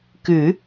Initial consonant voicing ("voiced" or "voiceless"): voiceless